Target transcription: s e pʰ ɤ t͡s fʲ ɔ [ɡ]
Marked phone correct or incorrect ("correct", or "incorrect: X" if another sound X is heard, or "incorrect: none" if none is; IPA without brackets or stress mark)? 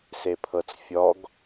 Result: correct